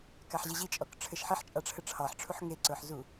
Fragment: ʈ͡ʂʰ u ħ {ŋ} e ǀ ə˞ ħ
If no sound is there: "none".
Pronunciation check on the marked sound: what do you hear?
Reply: ŋ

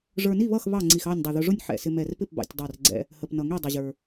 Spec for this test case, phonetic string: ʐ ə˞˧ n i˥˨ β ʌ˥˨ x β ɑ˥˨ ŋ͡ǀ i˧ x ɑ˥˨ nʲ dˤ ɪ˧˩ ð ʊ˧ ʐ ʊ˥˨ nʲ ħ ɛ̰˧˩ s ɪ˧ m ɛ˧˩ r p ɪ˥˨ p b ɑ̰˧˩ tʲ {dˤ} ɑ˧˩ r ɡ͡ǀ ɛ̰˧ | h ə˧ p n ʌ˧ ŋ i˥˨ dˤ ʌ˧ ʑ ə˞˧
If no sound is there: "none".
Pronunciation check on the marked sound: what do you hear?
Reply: dˤ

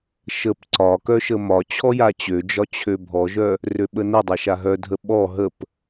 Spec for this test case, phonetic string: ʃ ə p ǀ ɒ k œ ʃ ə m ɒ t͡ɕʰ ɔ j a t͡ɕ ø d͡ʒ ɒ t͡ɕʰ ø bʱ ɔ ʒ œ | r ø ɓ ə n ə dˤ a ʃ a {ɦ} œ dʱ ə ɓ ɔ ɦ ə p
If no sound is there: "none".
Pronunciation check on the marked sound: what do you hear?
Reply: ɦ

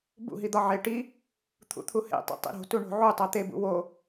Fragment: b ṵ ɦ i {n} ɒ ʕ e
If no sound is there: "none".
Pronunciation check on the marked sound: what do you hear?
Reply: d̪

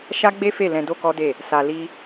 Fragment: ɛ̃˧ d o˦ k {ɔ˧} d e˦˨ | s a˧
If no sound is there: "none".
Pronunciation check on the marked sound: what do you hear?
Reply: ɔ˦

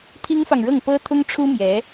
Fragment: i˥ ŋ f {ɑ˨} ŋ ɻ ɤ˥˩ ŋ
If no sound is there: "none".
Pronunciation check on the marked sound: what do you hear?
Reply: ɑ˨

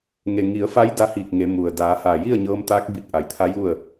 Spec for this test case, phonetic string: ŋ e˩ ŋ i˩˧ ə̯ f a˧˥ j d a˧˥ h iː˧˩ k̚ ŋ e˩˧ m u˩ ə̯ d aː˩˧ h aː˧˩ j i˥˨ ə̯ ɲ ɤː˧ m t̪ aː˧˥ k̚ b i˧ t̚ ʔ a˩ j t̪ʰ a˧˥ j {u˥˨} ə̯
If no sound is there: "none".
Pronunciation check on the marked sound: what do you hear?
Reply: u˥˨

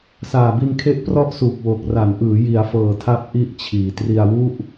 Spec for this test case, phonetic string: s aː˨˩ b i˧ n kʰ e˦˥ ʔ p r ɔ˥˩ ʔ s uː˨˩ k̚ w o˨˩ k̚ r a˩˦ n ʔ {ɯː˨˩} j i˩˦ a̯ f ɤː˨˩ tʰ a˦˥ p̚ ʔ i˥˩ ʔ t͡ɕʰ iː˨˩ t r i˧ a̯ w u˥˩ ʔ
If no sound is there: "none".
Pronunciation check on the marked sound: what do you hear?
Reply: ɯː˩˦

